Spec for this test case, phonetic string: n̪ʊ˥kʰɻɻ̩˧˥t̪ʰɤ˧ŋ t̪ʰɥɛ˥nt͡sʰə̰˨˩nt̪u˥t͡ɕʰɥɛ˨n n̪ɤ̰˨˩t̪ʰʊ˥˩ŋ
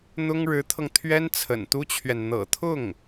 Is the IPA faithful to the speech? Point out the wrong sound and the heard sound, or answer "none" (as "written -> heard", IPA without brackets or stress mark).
kʰ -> ŋ